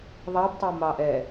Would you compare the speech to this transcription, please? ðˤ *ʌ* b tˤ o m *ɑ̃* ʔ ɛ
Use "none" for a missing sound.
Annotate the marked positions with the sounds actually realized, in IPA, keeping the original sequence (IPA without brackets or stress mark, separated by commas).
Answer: ɑ, ɑ